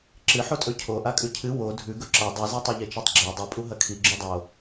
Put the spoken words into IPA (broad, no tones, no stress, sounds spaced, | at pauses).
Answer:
ǁ ɨ ħ o tʼ ɵ cʰ o ʔ a kʼ ʉ cʰ ɨ w o dʱ ʉ ɡ ɵ ǁ ɐ dˤ ɨ z e tˤ e ʎ e t͡ʃ e tˤ ɡ͡ǁ a dˤ u pʼ u ɦ ɐ kʰ i ɡ͡ǁ ʉ dˤ o